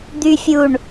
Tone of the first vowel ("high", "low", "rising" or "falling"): low